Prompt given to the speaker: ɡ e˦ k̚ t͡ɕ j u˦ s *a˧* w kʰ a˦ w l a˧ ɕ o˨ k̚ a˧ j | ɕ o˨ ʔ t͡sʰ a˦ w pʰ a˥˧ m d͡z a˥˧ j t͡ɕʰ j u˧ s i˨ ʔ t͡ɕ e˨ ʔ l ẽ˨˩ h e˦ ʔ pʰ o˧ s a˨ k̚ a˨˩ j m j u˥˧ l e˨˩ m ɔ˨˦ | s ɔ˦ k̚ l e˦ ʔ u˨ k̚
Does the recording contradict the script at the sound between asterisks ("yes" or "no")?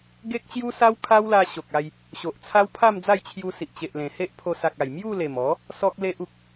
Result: yes